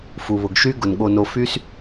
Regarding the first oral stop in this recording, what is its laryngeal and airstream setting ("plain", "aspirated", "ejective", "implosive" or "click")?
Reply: plain